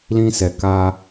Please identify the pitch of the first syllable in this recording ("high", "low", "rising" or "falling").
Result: high